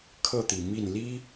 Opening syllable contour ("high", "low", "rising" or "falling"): falling